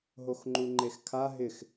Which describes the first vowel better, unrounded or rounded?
rounded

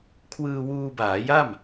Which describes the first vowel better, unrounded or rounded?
unrounded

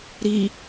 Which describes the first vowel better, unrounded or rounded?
unrounded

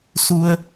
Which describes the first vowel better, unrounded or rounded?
rounded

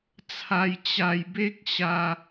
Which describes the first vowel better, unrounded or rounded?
unrounded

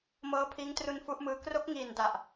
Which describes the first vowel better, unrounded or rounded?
unrounded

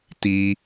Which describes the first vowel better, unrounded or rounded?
unrounded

